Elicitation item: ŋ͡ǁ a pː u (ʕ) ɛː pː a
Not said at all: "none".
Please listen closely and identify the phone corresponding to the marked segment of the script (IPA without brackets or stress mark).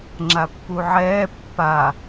ʕ